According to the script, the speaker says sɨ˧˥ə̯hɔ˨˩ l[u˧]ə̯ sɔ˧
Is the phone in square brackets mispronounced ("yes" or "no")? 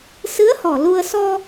no